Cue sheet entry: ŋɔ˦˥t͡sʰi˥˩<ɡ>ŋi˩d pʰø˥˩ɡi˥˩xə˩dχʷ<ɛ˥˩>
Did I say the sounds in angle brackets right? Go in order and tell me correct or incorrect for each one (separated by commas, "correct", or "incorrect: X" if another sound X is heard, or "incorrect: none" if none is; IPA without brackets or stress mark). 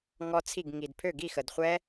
correct, incorrect: ɛ˦˥